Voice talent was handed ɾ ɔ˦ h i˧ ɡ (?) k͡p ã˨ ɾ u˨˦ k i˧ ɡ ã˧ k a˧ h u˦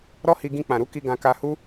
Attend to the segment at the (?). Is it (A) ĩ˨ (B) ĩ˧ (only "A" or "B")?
B